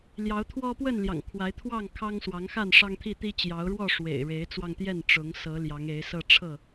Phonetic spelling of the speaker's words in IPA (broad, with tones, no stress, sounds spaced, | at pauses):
l j ɑ˨˦ ʊ̯ t̪ʰ w ɔ˦ p w ə˥˨ n l j ɑ̰˨˩ ŋ kʰ w a˨˦ ɪ̯ t̪ʰ w ɑ˥˨ ŋ kʰ ɑ˦ ŋ s w ɑ˨˦ ŋ x a˥˨ n ʂ ɑ˦ ŋ t̪ʰ i˥˨ t̪ i˦ t͡ɕ j ɑ˨˦ ʊ̯ ɻ w ɔ˥˨ ʂ w ḛ˨˩ ɪ̯ ɻ e˨˦ ɪ̯ t͡s w ɑ˧ ŋ t̪ j ɛ˥˨ n ʈ͡ʂ ʊ˨˦ ŋ s ɤ˨˦ l j ɑ˨˦ ŋ e˨˦ ɪ̯ s ɤ˦ ʈ͡ʂʰ ɤ˥˨